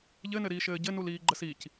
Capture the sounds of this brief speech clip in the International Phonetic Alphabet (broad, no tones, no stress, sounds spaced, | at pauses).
ʎ ɘ n ɘ ɾ iː ʃ ɘː ɟ ɘ n u l iː ɡ͡ǃ ə s i c